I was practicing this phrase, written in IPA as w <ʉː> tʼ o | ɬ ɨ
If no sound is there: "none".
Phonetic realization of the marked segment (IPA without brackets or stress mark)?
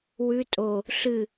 ʉ